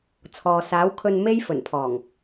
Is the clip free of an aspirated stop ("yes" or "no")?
no